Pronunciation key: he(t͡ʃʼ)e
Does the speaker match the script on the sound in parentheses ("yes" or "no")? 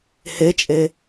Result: yes